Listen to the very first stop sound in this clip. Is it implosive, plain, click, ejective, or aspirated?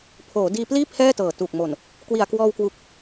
aspirated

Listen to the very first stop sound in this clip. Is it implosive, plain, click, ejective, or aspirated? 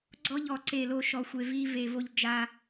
click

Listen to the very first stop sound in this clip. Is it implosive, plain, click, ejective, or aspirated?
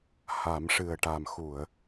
plain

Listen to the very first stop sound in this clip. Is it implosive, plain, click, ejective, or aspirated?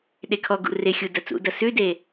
implosive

